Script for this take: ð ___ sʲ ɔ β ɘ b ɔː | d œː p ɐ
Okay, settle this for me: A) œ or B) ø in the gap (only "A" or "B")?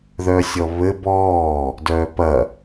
A